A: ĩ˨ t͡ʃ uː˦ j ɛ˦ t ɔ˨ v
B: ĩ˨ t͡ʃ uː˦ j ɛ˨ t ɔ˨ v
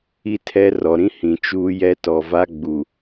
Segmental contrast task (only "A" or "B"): A